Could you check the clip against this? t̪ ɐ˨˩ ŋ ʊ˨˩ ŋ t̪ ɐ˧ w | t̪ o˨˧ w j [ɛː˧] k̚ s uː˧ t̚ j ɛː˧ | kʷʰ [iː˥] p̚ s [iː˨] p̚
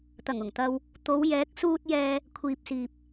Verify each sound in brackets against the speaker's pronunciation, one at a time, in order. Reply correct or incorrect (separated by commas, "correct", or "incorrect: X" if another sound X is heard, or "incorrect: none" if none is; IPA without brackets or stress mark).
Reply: incorrect: ɛː˨˥, incorrect: iː˨, correct